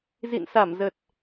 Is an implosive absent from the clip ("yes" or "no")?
yes